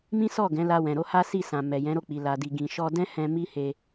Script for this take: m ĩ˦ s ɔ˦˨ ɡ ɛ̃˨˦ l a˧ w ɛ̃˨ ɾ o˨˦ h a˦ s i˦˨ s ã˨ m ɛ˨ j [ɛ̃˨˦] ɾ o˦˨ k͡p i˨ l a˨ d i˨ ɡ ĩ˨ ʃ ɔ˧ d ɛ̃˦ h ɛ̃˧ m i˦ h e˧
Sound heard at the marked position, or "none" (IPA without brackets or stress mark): ɛ̃˨˦